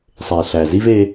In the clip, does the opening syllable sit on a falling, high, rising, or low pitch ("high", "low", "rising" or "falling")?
low